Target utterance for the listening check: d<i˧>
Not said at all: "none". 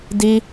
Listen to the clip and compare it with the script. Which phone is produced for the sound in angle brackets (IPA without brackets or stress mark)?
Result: i˧